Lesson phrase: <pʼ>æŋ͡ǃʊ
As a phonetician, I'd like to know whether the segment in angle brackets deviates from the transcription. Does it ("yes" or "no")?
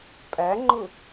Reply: no